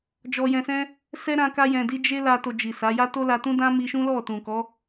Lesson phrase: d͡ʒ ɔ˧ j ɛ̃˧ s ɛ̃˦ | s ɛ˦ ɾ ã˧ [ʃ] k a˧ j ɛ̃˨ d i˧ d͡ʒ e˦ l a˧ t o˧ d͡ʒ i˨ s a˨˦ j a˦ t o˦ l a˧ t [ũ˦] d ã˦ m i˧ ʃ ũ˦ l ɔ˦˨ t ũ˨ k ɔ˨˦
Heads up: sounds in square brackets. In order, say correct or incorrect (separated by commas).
incorrect, correct